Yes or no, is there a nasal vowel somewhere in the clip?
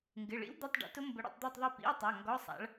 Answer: no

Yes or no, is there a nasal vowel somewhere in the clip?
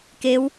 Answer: no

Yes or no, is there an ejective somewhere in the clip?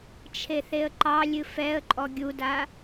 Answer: yes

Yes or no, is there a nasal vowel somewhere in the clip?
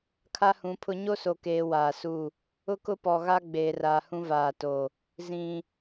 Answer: yes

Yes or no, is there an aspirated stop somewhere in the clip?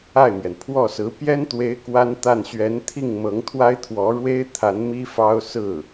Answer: yes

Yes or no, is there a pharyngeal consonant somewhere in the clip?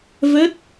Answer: no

